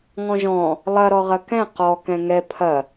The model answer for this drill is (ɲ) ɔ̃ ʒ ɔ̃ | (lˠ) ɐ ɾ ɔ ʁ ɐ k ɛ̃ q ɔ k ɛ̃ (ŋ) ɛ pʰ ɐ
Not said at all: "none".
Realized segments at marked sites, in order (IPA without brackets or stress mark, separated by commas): ŋ, lˠ, ŋ